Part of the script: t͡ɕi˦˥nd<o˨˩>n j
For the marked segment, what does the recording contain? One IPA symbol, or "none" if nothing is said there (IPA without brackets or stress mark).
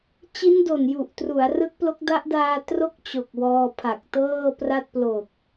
o˨˩